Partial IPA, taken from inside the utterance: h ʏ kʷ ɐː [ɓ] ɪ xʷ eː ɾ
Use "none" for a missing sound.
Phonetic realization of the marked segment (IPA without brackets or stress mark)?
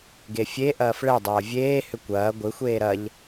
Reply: ɡʷ